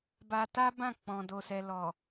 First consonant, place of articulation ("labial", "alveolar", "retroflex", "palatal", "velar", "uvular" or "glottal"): labial